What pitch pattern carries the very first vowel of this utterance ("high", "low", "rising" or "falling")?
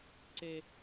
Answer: high